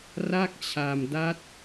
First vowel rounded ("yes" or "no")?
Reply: no